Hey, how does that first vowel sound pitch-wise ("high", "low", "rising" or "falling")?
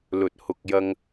low